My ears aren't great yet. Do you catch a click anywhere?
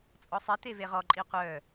yes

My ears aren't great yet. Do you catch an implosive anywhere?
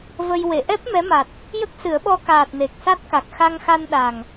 yes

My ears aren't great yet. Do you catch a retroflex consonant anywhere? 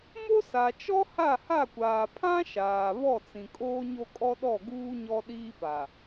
no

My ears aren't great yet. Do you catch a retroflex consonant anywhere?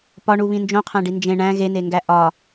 yes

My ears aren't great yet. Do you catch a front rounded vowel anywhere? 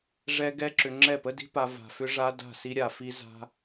yes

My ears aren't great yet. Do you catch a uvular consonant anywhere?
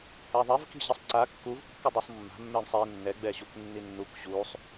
no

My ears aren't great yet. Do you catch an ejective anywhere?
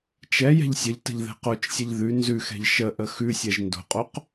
yes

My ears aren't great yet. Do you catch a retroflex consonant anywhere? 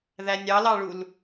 yes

